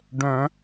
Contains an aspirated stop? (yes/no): no